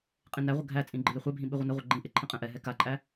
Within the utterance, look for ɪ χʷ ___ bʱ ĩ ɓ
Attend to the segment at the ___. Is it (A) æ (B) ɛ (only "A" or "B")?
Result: B